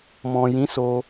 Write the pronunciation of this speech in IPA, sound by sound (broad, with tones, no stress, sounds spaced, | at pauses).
m ɔ̃˨ j ĩ˨˦ s o˧